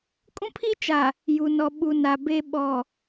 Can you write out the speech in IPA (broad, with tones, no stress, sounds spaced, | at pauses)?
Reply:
kʼ ũ˦ pʰ i˦ t͡ʃ a˨ | j u˨ n ɔ˨ ɓ u˨ n a˨ b e˨ ɓ ɔ˨